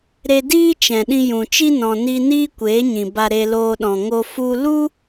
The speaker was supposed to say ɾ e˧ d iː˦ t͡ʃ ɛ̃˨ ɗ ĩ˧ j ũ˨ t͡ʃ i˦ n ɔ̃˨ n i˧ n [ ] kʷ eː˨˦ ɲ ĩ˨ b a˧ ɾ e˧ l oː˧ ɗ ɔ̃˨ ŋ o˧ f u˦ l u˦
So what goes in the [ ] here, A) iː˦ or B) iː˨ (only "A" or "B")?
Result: A